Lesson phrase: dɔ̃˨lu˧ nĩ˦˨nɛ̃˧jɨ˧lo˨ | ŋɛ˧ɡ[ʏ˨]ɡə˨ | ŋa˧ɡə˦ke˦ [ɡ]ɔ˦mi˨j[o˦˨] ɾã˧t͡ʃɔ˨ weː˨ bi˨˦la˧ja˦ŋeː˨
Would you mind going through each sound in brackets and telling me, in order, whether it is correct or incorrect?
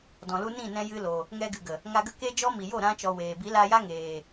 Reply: incorrect: ɨ˨, incorrect: d͡ʒ, correct

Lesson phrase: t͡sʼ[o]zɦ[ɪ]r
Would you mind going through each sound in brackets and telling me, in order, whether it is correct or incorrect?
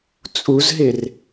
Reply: incorrect: u, correct

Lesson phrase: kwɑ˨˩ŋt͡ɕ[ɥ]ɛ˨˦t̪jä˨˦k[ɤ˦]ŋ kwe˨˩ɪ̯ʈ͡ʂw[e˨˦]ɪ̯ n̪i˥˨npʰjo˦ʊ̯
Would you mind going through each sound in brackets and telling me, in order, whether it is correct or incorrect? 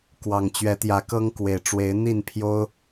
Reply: correct, correct, correct

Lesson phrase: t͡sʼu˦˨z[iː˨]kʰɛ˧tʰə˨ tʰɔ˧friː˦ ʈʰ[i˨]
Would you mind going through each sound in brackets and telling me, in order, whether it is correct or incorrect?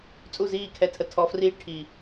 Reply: incorrect: iː˦˨, correct

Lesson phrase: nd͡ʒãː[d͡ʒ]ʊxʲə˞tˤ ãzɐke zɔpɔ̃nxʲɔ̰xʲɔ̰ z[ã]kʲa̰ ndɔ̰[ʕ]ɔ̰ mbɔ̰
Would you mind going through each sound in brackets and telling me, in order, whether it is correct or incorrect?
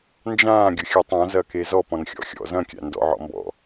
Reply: incorrect: ɡʲ, incorrect: ɐ̃, correct

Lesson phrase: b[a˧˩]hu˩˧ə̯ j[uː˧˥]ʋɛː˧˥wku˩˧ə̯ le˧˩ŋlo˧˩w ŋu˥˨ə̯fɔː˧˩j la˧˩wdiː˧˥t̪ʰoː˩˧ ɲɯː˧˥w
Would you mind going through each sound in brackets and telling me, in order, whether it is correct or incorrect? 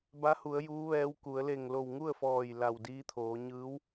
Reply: incorrect: a˧˥, correct

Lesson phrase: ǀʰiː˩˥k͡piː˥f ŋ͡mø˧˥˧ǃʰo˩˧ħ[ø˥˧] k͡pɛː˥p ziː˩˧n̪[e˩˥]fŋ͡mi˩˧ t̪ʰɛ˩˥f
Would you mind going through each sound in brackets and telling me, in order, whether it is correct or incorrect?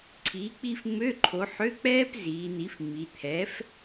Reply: incorrect: ø˧˥˧, incorrect: i˩˥

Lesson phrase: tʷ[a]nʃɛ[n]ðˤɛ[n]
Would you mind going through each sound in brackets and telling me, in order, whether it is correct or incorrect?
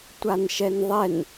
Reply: correct, correct, correct

